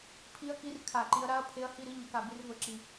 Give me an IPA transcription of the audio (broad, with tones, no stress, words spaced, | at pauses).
pʰi˧˥˧ɐ̯ki˧˥˧r kʰa˧˩˧ǃi˨˦ɐ̯ɾa˧˥˧ɐ̯ pʰe˨˦ɐ̯ hi˥˩ɾi˧˥˧ɲə˨˦ka˨˩ bi˥˩rvə˧˩˧ǁi˨˩